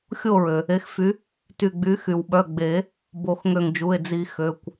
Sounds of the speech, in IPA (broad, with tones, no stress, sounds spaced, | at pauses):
xʲ o˥˨ ɹ ø˩ | e˨˥ x f y˨˥ | t y˧˩ ɡ͡b y˨˥ x y˩ w ɓ œ˩˧˩ ɡ͡b e˨˩˦ | b o˨˩˦ x ŋ ø˧˩ ŋ d͡ʒ u˩˧˩ e̯ d͡z i˨˩˦ x ø˩˧˩ kʷ